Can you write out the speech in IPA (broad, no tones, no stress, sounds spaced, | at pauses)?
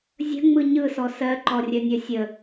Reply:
zʲ ə̤ ŋ͡m ɯ ɲ ɯ s ɔ s ɜ ǃ ɔ rʲ œ nʲ œ sʲ ə